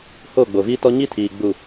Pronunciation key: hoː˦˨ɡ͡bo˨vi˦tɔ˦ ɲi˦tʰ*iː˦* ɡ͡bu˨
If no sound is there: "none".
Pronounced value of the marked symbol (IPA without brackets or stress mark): iː˨